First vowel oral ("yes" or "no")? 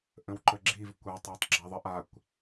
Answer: no